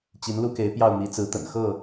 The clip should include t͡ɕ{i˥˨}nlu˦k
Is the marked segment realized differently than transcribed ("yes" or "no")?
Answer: yes